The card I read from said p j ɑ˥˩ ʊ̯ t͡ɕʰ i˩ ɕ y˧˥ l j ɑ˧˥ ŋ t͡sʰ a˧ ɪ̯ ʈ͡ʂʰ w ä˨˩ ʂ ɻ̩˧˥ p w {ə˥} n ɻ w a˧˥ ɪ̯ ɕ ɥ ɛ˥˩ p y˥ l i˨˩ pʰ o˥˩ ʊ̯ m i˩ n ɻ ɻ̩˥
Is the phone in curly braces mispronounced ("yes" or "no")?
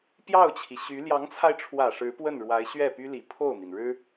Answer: yes